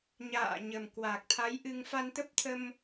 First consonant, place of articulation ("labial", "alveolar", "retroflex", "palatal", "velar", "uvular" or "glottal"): palatal